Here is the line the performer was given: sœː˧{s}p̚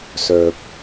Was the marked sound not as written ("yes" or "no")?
yes